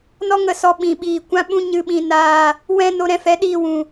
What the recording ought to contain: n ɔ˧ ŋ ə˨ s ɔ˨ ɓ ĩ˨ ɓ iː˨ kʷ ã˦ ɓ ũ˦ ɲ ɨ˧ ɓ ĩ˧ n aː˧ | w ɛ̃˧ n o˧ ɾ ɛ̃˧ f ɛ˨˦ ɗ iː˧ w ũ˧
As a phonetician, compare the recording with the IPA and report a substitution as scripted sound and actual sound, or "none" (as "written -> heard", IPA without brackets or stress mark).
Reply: none